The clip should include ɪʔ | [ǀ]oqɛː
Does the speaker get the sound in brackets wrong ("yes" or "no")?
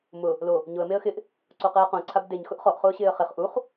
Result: no